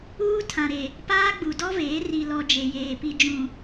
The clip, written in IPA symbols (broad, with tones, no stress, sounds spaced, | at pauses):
uː˦ tʰ ã˨ ɾ e˨ | p aː˦ ɡ͡b u˨ d ɔ˦ v eː˨˦ r i˨ l ɔ˨ d͡ʒ e˨ j eː˨ p i˨ d͡ʒ ũ˨